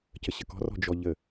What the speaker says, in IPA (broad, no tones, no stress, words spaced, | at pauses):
cəɕəkɔ̤rɔ̤ d͡ʒɔʎə